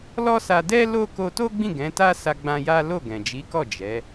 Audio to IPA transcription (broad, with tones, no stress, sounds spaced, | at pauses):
l ɔ˦ s a˧ d ɛ˦ l o˦ k o˧ t o˦ ɡ͡b ĩ˦˨ ɡ ɛ̃˨˦ t a˦ s a˧ ɡ͡b ã˧ j a˦ l o˦˨ ɡ ɛ̃˨ d͡ʒ i˨˦ k ɔ˦˨ d͡ʒ ɛ˨˦